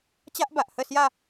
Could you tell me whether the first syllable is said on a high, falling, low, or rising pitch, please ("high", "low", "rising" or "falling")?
high